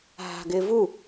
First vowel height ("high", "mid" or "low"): low